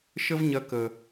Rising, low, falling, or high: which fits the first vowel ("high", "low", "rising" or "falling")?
high